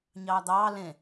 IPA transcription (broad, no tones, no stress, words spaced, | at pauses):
ɲɑːd̪ɑː lẽ